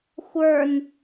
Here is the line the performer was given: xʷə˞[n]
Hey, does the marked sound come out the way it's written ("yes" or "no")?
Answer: yes